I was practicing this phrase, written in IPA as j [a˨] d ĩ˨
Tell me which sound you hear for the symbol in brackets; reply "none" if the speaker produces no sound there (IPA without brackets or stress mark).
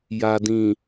a˨